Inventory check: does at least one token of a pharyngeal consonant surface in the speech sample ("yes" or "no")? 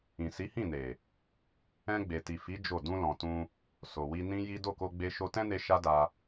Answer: no